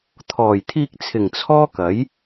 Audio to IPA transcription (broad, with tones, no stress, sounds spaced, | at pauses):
t̪ʰ ɔː˨˩ j t̪ʰ iː˧ k̚ t͡sʰ ɪ˨˩ ŋ t͡sʰ ɔː˥ k ɐ˨˥ j